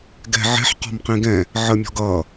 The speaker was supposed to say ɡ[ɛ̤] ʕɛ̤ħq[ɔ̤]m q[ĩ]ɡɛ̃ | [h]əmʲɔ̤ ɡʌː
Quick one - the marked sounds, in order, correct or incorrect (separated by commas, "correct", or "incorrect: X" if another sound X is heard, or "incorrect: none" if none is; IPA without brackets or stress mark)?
correct, correct, correct, incorrect: ʕ